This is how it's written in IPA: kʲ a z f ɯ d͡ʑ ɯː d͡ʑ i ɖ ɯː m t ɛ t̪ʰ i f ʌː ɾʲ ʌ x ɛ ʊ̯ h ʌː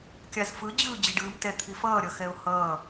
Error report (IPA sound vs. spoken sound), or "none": none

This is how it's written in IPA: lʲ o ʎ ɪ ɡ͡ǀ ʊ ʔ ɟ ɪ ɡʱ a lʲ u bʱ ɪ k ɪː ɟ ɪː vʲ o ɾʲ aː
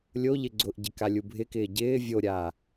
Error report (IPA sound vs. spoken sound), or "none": ɡʱ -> k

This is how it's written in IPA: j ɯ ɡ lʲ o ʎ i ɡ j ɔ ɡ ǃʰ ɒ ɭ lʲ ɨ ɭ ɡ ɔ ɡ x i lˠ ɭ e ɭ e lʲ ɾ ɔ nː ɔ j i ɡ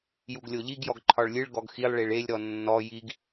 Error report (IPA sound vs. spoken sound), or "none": ɯ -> u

